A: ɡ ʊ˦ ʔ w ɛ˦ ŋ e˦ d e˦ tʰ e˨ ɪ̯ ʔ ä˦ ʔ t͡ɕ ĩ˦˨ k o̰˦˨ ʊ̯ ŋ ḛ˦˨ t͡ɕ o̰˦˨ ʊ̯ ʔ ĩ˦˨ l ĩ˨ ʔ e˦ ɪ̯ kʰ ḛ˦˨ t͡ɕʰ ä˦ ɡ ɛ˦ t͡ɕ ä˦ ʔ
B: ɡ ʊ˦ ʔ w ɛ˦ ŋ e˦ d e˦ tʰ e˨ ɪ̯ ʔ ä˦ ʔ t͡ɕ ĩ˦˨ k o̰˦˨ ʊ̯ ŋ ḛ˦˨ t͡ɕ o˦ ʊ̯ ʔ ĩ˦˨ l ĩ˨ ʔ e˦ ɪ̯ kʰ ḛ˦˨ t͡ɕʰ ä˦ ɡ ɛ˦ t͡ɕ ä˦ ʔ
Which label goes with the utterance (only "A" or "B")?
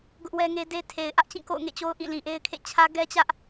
B